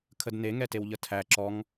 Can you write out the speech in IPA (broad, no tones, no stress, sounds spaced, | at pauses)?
kʰ ə d n e ŋ ɛ t e w ʎ ə tʰ æ ǁ ɔ ŋ